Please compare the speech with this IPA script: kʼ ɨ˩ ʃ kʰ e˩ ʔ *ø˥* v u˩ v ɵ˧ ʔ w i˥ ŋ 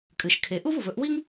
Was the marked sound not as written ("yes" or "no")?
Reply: yes